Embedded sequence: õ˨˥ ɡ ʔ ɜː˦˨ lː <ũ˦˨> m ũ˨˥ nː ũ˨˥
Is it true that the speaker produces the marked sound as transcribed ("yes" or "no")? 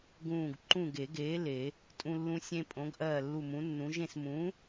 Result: no